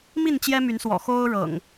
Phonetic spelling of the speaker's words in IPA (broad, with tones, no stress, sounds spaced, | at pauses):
m i˥˨ n t͡ɕ j ɛ˦ m y˨˦ n s w ɔ̰˨˩ x o˦ ʊ̯ ɻ ɤ̰˨˩ ŋ